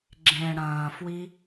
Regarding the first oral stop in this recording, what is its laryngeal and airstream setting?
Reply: click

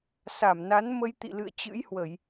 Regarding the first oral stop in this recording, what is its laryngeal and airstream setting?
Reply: plain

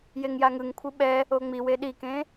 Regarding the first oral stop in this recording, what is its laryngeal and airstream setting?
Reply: aspirated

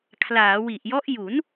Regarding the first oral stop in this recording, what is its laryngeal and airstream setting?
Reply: aspirated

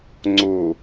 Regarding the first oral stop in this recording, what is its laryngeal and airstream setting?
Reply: click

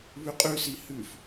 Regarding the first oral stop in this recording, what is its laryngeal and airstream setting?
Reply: ejective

